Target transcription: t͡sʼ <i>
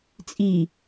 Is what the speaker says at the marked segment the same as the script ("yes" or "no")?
yes